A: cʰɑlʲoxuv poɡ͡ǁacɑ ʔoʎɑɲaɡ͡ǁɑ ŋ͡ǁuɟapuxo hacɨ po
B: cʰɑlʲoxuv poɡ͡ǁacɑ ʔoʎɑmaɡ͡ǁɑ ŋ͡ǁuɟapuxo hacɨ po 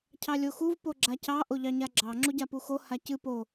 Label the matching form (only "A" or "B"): A